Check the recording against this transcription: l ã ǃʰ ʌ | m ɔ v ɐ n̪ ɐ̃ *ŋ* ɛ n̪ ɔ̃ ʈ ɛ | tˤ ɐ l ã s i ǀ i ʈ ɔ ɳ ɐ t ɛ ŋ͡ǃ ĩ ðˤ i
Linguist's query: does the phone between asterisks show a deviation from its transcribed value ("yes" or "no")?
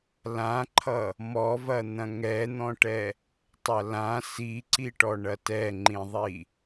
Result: no